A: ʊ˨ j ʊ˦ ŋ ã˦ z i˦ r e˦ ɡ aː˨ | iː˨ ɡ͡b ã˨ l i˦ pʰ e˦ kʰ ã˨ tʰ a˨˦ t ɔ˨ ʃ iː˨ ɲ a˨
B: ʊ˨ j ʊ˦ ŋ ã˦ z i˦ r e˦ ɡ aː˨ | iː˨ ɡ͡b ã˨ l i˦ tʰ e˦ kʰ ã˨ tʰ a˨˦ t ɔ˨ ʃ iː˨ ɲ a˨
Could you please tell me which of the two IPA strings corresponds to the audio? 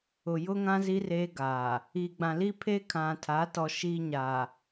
A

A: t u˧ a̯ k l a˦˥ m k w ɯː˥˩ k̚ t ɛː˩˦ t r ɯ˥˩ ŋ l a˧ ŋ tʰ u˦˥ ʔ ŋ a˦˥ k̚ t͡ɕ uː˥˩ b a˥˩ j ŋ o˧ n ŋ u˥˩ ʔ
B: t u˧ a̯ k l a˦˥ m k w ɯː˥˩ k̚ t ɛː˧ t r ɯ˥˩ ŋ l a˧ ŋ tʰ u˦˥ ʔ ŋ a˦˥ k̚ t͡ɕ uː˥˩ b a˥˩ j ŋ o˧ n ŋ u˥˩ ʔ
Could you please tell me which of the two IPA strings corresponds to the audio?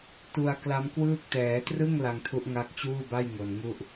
A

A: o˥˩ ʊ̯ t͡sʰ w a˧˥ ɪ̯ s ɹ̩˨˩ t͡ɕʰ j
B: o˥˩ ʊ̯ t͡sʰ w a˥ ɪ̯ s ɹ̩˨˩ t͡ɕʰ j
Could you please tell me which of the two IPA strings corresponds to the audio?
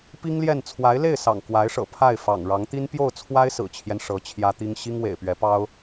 B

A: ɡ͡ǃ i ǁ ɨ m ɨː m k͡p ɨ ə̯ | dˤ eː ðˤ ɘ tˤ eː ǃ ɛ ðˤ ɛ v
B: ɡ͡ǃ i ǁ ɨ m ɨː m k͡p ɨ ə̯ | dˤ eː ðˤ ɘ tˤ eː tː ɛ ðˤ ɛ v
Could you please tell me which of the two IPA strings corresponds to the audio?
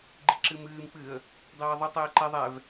A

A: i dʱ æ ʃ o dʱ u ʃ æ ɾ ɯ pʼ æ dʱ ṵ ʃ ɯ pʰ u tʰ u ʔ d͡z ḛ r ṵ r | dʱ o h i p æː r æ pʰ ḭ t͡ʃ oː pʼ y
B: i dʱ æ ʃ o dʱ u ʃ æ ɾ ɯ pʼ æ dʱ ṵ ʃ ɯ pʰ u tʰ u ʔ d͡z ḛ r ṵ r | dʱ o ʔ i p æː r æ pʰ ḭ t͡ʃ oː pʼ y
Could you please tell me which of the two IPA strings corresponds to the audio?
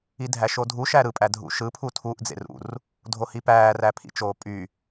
A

